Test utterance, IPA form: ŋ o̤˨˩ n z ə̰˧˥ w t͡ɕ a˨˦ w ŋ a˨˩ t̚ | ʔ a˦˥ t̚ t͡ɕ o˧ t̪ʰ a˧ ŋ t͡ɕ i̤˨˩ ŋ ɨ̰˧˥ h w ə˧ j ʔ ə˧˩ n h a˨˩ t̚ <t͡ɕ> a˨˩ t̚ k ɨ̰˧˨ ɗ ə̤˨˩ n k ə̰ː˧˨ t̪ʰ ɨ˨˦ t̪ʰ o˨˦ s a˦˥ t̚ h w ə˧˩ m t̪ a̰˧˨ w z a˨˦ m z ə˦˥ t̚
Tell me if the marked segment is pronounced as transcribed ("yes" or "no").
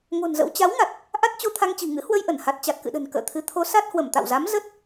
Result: yes